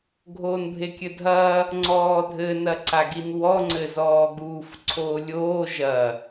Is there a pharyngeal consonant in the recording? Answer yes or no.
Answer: no